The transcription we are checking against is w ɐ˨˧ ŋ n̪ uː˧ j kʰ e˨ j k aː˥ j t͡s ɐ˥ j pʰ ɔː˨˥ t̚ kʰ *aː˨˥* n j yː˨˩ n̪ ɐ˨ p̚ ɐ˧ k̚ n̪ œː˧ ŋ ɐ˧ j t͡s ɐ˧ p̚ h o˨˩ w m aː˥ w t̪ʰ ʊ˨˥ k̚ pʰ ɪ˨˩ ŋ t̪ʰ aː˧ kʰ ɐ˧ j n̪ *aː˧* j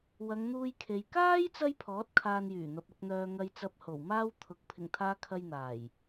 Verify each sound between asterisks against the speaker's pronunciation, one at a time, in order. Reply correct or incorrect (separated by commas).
incorrect, incorrect